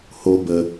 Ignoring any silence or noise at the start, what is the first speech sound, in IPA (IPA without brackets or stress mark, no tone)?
h